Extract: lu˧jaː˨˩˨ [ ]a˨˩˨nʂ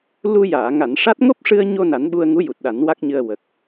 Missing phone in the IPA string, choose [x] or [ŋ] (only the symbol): ŋ